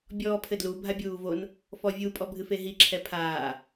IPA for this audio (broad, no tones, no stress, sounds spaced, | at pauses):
bʲ ɔː pʰ ɘ d l u bʱ a bʲ uː v o n | f ɔ vʲ u pʼ ɔ bʱ ɨ f e ɦ i ǁʰ ɛ pʰ aː